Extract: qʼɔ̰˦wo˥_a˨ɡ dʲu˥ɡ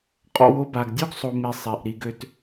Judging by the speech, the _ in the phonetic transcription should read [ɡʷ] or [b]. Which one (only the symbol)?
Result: b